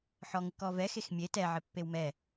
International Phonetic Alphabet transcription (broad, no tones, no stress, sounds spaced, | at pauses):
ħ ɔ ŋ ɪ k ɔ v ɛ x e x mʲ e t ɛ ʕ ɪ pː e w m ɛ